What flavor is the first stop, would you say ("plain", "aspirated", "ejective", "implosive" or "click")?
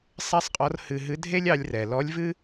ejective